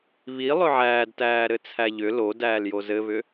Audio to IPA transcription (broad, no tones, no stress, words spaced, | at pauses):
βi lˠʏʕæːdtæː ɾɘt͡sʰæʎʏ lo dæːljozɘβʏ